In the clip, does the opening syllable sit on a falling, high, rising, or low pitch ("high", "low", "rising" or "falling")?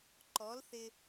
rising